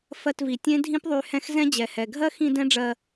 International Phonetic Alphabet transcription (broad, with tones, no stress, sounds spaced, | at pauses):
f ɜ˧ t v i˨ tʲ ẽ˦ dʱ ĩ˦ p ðˤ y˧ h ɛ̃˦ x z ɛ̃˦ d͡ʑ ɛ˨ h ɛ˨ ɡʱ ɜ˦ x ĩ˧ d ɛ̃˦ ɖ͡ʐ ɜ˧